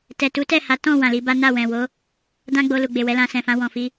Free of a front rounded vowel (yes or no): yes